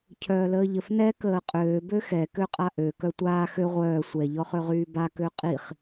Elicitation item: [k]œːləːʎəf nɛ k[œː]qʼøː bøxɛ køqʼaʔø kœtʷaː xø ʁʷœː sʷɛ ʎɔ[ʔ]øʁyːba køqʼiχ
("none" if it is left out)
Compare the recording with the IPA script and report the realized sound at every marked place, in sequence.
cʰ, əː, χ

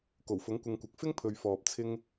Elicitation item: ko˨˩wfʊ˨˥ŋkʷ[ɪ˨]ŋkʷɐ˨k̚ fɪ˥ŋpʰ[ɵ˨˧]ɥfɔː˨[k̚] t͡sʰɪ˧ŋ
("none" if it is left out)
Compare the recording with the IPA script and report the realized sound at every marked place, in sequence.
ɪ˨, ɵ˨, p̚

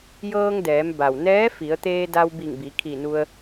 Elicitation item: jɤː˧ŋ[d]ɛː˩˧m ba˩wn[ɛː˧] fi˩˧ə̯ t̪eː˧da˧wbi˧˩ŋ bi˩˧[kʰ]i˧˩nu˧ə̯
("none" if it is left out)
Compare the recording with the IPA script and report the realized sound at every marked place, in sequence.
d, ɛː˧˥, kʰ

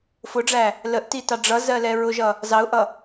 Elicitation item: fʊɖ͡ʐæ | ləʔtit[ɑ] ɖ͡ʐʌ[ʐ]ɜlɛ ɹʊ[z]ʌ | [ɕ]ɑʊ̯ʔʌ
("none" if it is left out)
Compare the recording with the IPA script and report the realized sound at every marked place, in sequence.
ɑ, z, ʒ, z

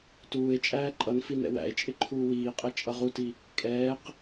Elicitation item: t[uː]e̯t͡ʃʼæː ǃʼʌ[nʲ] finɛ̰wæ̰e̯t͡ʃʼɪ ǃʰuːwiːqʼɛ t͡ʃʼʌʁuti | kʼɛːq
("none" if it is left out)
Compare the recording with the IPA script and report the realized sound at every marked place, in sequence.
uː, n

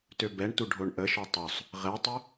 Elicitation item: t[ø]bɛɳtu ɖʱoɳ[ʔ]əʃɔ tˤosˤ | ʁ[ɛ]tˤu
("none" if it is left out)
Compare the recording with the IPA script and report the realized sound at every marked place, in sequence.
ø, ʔ, ɛ

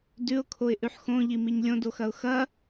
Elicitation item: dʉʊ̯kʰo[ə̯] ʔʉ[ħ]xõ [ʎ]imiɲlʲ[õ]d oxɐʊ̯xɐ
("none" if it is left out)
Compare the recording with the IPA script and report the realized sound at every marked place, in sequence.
ɪ̯, ħ, ʎ, õ

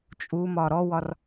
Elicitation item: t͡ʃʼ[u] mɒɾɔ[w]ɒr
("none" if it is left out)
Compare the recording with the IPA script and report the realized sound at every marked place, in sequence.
u, w

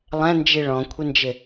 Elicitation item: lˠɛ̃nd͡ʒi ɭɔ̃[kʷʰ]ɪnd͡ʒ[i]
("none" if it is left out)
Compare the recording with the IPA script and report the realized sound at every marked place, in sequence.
kʷʰ, ɪ

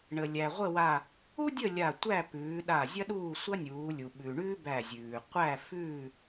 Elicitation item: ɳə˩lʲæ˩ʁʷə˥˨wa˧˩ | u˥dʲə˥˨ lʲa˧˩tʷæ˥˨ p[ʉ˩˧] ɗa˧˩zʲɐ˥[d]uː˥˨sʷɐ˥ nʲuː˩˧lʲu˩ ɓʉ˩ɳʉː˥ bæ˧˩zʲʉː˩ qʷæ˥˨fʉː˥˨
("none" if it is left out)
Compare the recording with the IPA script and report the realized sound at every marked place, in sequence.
ʉː˩˧, ɗ

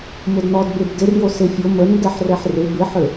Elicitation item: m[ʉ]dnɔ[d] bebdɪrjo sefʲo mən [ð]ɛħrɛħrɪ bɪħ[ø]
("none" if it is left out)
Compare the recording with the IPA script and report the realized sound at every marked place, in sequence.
ʊ, d, d, ø

